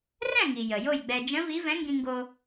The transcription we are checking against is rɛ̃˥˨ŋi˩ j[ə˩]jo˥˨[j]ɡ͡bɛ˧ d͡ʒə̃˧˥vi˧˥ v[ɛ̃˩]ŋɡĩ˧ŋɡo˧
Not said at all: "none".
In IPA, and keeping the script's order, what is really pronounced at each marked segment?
ə˩, j, ɛ̃˧˥

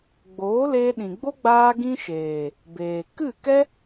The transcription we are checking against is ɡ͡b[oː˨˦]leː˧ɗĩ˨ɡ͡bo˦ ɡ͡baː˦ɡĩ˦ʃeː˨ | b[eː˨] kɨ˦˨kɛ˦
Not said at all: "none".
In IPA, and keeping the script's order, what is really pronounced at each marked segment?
oː˨˦, eː˨

